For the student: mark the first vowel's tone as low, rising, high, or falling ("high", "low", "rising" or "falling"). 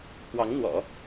rising